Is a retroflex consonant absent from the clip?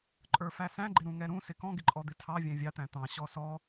yes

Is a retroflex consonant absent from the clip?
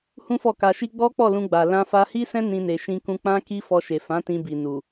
yes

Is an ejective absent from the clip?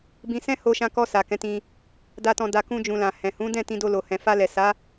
yes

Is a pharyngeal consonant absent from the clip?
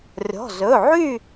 no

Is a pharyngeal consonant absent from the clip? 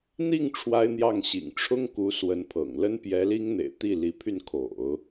yes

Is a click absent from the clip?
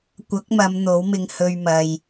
yes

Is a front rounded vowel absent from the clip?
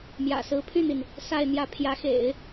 no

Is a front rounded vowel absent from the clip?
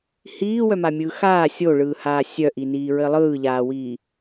no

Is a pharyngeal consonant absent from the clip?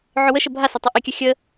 no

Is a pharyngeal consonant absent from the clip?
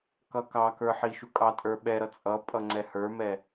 no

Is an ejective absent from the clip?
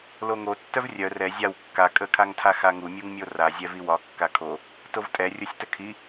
no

